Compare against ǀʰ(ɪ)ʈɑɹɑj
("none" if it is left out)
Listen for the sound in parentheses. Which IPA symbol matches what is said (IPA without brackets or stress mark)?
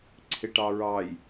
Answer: ɪ